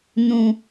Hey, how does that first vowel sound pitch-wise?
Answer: low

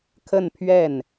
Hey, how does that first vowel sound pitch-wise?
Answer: falling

